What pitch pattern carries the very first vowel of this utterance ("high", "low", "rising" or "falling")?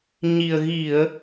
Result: low